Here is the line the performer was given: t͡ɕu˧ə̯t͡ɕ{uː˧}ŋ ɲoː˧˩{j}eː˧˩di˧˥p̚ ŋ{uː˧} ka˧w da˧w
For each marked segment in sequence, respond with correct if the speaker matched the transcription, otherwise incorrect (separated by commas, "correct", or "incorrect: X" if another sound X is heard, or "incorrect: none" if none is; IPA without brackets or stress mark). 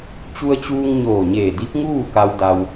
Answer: correct, incorrect: ɲ, incorrect: uː˥˨